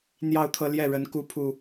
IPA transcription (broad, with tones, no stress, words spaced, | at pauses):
n̪jɑ˥˨ʊ̯t̪ʰɤ˦ljɛ˥˨ ɻə˨˦nku˨˦pʰu˨˩